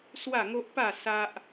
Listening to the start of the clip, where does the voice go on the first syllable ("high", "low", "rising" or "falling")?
falling